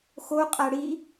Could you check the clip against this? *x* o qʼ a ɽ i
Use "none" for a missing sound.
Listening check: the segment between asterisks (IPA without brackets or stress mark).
x